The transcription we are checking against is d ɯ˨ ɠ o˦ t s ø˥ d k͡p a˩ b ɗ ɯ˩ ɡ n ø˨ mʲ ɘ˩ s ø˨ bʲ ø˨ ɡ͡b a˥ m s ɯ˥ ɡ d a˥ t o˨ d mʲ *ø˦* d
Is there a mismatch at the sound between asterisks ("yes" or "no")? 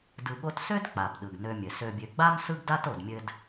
yes